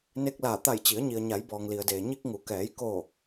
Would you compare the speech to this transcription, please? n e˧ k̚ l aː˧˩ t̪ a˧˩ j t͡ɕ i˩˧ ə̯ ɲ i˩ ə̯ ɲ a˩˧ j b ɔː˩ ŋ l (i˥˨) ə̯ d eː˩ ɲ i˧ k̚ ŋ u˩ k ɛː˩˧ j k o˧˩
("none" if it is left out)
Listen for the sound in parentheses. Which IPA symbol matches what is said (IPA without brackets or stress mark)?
i˩